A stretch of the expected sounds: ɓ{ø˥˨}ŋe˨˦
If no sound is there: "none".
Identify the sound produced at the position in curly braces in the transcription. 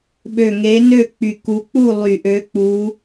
ø˨˩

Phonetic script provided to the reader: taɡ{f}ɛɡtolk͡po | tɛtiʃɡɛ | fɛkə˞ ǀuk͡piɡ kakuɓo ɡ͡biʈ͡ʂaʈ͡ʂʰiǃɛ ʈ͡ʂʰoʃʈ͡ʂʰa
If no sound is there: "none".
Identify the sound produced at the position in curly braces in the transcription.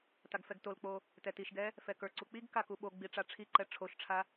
f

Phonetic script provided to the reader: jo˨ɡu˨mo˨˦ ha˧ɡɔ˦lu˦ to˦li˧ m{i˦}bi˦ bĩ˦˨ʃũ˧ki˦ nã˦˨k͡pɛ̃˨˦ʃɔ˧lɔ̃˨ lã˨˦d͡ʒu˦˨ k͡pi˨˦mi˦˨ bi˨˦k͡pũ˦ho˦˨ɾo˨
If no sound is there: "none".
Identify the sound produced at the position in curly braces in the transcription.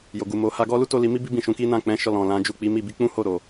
i˦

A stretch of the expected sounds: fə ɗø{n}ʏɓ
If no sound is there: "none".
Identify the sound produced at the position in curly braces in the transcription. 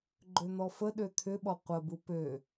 t̪ʰ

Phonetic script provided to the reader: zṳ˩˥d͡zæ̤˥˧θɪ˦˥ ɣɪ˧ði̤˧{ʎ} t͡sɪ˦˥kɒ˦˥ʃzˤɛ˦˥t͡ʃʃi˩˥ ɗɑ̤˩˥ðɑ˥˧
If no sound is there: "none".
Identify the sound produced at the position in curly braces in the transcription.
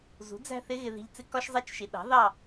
ʎ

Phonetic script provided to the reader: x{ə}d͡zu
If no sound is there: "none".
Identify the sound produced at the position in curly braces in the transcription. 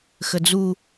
ə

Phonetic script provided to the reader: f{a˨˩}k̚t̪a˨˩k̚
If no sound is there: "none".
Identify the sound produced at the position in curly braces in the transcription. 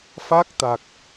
a˦˥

